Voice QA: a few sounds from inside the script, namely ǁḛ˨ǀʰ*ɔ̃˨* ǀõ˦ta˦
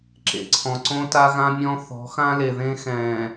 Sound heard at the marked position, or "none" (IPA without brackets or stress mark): ɔ̃˨